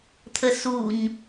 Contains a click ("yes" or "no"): no